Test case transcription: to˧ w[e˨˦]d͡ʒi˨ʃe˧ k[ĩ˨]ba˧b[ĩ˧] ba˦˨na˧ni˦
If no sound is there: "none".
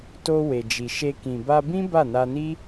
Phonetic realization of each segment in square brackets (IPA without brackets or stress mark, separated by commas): e˨, ĩ˨, ĩ˦